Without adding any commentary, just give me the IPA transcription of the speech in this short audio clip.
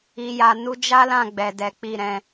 i˨ j a˨ n u˧ d͡ʒ a˦ l ã˦˨ ɡ͡b ɛ˨ d ɛ˨˦ k͡p i˦˨ ɾ ɛ̃˧

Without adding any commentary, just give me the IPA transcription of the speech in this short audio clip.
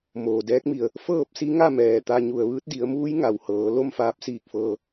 m oː˩ d ɛː˧˥ k̚ m i˧˩ ə̯ | f ɤː˥˨ p̚ s i˧˥ ŋ a˥˨ m ɛː˩ t̪ a˧ ɲ u˩ ə̯ ʋ ɯː˧˥ t̚ d i˩˧ ə̯ m uː˧˥ j ŋ a˩ w h ɤː˩˧ l o˥˨ m f aː˧ p̚ s iː˧˩ k̚ f ɤː˧

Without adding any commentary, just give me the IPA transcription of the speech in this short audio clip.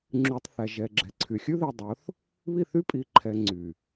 ŋ͡ǁ y˨ tˤ θ æ˨ ʒ ɛ˨ ɡ͡ǁ ɛ˨ ǀʰ y˨ xʲ ʉ˦ ð i˨ dˤ o˨˦ θ | β i˦˨ θ y˦ pʼ i˨ ǃʰ ɛ˨ ŋ͡ǀ y˨

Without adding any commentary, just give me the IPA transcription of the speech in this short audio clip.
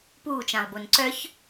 p uː t͡ʃ ã lˠ b o n ǀ œ ç

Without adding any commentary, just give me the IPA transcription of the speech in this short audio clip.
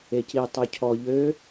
e c i tˤ y cʰ ɔ ʎ ø

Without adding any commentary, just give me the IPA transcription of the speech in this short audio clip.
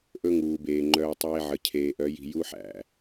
ʔ ɵ˦ ŋ uː˨ b eː˨ ŋ͡ǃ œː˦ tˤ eː˦ ʕ ə˨ cʰ eː˨ ʔ œ˨˦ j i̤˨ j u˦ ħ æ̰˨

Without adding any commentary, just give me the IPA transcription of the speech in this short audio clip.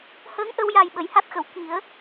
h əː˧˥ ŋ ʔ ə˧ w j a˨˩ j ɓ ə˨˩˨ j h a˦˥ t̚ x ə˨˩˨ w k i˨˩˦ ə̯

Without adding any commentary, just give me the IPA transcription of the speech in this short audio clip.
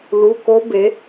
l u˩˧˩ k o˦˥ b e˩˥

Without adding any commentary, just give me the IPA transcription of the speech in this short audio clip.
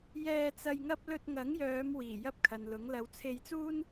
j ɛː˧ t͡s ɐ˧ j ŋ ɐ˥ p̚ l ɵ˧ t̚ ŋ ɐ˨˥ ŋ j œː˨˧ m w iː˨˩ j ɐ˥ p̚ kʰ ɐ˨ n l ʊ˨˥ ŋ l ɐ˨˧ w t͡sʰ e˧ j t͡s uː˥ n

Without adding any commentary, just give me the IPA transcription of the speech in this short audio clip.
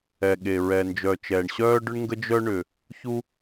ɛ˩ ɠ e˩ ɹ ɛ˩ n d͡ʒ œː˩ t͡ʃ ɛː˩ ɳ ɕ œː˥ ɖ ʏ˥ ɳ ŋ ɡ ə˥ d͡ʒ œ˥ ɳ ʏ˩ | ç u˥

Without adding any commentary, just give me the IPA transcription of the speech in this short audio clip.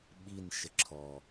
ɓ i n ʃ ə ǁʰ ɔ

